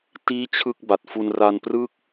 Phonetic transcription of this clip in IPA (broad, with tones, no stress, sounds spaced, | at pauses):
t iː˥˩ t͡ɕʰ ɯ˥˩ k̚ b a˨˩ t̚ f u˧ n r a˧ n p r ɯː˥˩ k̚